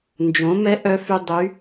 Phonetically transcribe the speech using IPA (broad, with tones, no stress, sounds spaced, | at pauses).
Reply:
n d͡ʒ õ˩˥ m ɛ˧˥ ʔ œ˧˥ f y˧ dˤ y˧˥